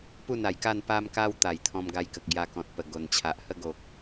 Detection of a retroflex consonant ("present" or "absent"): absent